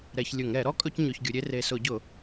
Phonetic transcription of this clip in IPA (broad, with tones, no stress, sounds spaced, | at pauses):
ɾ ɛ˧˩˧ ç lʲ ʊ˧˩˧ ŋ ɾ ɛ˧˩˧ ɾ ɔ˥ kʼ ɵ˥ c ɲ ɵ˧˩˧ ç ɡʲ ʊ˨˦ ɾʲ e˥ r e˨˩ s ʊ˧˩˧ ɟ ʊ˧˩˧